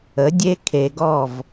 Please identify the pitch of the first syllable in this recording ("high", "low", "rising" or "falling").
rising